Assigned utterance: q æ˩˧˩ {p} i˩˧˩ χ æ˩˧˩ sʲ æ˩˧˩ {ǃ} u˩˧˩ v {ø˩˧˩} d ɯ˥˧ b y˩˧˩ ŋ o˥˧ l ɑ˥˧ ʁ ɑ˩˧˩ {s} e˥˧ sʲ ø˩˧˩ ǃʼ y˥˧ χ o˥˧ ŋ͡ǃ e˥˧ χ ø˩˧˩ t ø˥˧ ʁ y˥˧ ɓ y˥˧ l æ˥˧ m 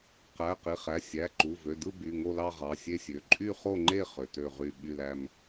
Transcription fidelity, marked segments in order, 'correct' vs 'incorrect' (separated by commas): incorrect, correct, correct, incorrect